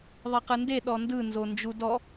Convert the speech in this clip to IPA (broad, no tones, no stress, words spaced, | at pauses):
ðˤiqɯnde ɗɔndɯnzo nd͡ʒudɔ